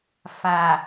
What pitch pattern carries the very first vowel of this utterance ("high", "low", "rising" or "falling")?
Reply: low